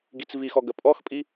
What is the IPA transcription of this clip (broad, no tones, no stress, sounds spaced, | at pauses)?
ɡ i t͡s v i x ɔ ɡ ə pʼ ɔ x pʼ i